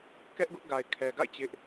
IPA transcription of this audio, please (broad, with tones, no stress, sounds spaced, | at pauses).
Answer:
k ɛ˦ ʔ ɡ ʊ˦ ʔ ɡ a˨ ɪ̯ kʰ ɛ˨ ɡ a̰˦˨ ɪ̯ t͡ɕ ɪ˦ ʔ